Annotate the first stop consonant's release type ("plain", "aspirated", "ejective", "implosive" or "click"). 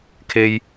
aspirated